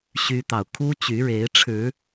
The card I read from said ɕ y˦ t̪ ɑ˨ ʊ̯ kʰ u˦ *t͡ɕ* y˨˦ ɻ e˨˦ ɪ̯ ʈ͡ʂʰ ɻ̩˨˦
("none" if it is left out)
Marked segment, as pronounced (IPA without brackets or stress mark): t͡ɕ